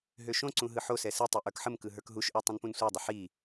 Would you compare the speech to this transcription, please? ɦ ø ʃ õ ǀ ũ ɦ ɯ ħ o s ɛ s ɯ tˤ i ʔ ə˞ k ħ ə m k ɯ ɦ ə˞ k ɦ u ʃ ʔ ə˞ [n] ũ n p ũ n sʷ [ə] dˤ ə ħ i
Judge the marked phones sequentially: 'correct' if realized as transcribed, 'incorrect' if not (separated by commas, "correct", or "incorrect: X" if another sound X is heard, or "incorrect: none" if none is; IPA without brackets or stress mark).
incorrect: tˤ, incorrect: ə˞